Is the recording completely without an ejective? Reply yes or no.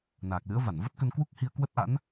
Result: yes